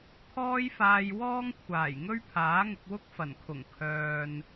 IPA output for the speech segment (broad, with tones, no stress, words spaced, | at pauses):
t̪ʰɔː˥jfaː˧j wɔː˥ŋkʷʰaː˨˩j ŋɵ˥ɥpʰaː˨˥ŋʊ˧k̚wʊ˥k̚ fɐ˨˩nkʰʊ˨˩ŋ kʰœː˨n